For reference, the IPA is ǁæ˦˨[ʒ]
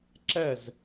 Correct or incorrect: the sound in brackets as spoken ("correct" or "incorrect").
incorrect